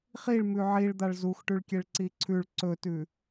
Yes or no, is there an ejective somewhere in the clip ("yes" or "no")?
no